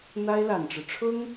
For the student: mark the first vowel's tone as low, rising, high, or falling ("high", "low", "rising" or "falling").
high